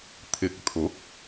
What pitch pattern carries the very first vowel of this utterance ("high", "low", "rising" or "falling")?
rising